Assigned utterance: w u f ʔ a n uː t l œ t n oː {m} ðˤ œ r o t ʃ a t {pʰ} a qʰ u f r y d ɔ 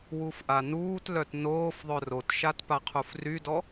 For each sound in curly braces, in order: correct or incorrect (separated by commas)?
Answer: incorrect, incorrect